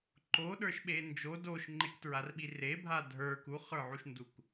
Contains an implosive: yes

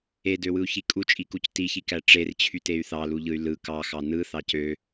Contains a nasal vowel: no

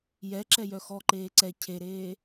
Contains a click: yes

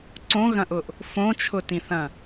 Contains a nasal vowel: yes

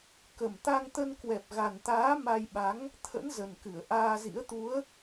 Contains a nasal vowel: no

